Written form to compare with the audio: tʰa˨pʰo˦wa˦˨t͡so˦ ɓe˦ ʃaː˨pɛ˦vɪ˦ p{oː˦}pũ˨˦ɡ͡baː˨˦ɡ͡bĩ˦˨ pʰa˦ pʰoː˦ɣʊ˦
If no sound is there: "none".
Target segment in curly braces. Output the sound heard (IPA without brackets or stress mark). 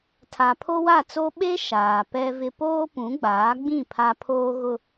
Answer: oː˦